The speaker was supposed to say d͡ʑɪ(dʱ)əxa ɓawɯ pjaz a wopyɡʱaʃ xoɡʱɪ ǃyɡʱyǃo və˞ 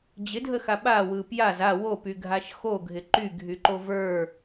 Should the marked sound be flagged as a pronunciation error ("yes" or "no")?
no